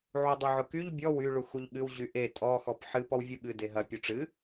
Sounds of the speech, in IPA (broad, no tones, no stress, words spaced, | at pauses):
ʕudˤuʕʊkyʎ bʲɔ wy ɭuxuʎɠɨw ʑyʔe tʼɔ xɔpħɨ pɔwvʲuɠɨ deɦɐ pʲuʈ͡ʂɨ